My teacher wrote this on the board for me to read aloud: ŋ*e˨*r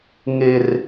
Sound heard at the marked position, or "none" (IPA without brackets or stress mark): e˦